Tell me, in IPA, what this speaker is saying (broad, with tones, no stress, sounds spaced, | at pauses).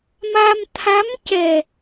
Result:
m a˧ m t̪ʰ a˧˥ m c ɛ˨˩